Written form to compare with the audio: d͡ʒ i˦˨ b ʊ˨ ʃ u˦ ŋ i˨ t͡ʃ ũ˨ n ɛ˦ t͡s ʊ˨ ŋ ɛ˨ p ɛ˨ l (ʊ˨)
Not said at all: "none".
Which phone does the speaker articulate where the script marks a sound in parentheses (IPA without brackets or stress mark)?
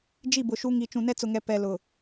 ʊ˨